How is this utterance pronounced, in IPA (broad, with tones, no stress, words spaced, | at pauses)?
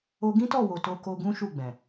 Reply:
o˧ɡĩ˦tɔ˦˨wo˨ to˧ko˧ ɡũ˦ʃu˦˨ɡ͡bɛ̃˨